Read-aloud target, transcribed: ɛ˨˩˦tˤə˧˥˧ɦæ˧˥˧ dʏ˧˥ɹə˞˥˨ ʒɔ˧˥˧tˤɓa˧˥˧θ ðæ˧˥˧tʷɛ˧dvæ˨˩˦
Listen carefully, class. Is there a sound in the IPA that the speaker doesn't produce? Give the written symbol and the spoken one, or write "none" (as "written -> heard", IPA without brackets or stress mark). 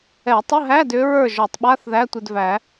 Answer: ɔ˧˥˧ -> ɔ˨˩˦